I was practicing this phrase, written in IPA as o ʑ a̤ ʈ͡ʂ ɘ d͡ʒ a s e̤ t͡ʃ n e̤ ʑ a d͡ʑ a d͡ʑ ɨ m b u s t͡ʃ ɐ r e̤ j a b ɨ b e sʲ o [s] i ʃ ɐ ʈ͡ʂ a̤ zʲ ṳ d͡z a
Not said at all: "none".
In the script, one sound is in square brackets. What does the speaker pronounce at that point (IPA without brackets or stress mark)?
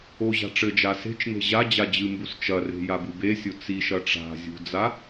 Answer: t͡s